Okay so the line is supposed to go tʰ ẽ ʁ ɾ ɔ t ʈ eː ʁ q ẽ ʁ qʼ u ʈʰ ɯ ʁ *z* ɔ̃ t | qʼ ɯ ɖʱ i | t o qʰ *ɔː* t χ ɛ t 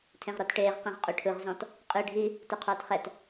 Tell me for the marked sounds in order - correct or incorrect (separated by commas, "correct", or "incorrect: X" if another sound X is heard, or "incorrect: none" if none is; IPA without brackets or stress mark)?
correct, correct